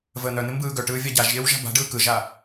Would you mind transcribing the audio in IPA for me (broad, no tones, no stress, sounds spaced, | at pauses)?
v əː n̪ œ n̪ ɪ m b ɯː ɡ œ ʈ ɯː vʲ a ɟ a ʒ ʎ ɪː w ʒ a̤ b a̤ ɖ ɯː k ɯ ʒ a